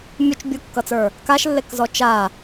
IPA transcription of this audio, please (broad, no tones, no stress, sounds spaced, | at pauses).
mʲ u t͡ʃ bʲ u kː ʌ t͡s ə˞ | k a ʃ lː e k z ɔ t͡ʃ a